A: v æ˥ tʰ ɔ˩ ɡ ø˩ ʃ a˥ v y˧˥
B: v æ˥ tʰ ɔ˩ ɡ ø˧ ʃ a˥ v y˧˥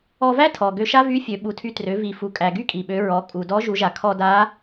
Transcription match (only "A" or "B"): B